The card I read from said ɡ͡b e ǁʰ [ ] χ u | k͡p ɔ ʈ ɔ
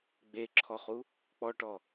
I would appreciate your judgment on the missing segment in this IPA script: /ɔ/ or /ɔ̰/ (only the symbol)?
ɔ